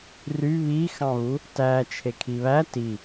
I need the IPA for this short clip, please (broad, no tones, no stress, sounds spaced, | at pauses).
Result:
r y β i x ɑ̃ β u | t æ t͡ʃʰ e kʰ i β æ t i